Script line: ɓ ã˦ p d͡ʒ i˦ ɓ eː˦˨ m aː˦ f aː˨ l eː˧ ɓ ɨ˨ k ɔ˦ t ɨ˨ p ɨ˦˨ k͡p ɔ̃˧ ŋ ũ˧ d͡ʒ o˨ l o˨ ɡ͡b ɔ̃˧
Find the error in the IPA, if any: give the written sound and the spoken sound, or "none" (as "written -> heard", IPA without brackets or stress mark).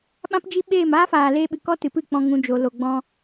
none